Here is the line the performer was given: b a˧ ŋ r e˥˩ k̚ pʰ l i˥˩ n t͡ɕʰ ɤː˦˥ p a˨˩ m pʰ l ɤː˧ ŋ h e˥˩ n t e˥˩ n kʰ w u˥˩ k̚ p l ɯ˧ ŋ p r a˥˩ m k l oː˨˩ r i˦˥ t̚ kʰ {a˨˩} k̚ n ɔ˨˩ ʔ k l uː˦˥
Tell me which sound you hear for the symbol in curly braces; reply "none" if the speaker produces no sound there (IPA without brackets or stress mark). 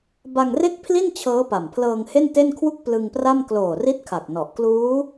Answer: a˨˩